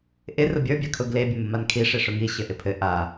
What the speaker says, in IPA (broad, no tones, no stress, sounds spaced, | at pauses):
ʔ ɪ r ʊ bʲ ə˞ bʲ a kʰ ʊ ɡ l e bʲ ʊ m ʊ m a n kʰ i ʂ e ʂ ʊ ŋ i ɕ ɘ ʔ ɪ pʰ ɘ ʔ a